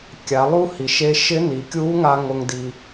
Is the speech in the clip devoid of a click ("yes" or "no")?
yes